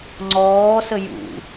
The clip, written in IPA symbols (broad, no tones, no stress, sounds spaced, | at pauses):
ŋ͡ǀ ɔː s ə j ṵ